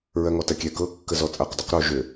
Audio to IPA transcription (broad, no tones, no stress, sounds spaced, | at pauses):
ɹ ɜ ŋ ɔ t ɜ kʲ ɛ k ɤ kː ə z ɔ t͡sʼ ɤ q d ɔ q ɾ o ʒ ø